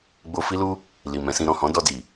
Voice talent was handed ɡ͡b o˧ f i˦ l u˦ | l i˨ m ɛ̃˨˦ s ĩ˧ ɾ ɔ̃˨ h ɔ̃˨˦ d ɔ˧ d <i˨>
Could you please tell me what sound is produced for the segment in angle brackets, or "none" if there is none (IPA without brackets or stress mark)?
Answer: i˨